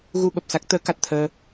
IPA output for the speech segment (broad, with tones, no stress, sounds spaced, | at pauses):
ɣ u˧ ɓ ə˨˩ p̚ s a˦˥ k̚ t̪ əː˨˦ k a˨˩ t̚ t̪ʰ əː˧